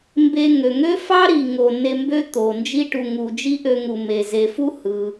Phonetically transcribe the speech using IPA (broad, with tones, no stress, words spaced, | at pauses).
mbe˧ŋø˩ŋø˥ fɑ˥ɾi˩ŋo˩ ne˧mbø˥ t̪o˩ nd͡ʒi˧ʈu˩ŋu˩ d͡ʒi˥ʔø˧ŋu˩me˩ ze˩fu˥ hɯ˩